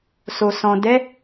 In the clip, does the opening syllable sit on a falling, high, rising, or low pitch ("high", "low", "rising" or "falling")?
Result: low